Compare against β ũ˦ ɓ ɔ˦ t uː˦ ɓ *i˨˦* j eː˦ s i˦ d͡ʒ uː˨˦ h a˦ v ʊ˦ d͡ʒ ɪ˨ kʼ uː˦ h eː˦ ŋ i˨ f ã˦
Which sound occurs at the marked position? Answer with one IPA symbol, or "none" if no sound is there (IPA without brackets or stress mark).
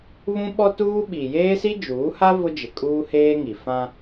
i˨